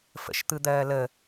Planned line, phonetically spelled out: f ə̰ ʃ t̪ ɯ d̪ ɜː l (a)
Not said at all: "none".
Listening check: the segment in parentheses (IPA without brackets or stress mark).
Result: ə